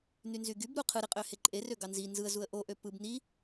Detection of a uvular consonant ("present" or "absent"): present